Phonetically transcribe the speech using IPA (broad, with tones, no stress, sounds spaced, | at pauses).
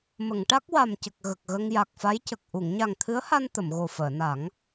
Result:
m ə˨˩˨ ŋ ʈ a˦˥ k̚ w a˨˩ m c ə˨˩ k̚ ɣ ə˨˩ k̚ ɣ ə˧ ŋ j a˨˩ k̚ f a˧˥ j c ə˨˩ k̚ ʔ u˨˩˨ ŋ ɲ a˨˩ ŋ t̪ʰ ɨ˧˥ ə̯ h a˧ n t̪ ə˨˩˨ m ɣ o˨˩ f əː˨˩˨ n a˨˩˦ ŋ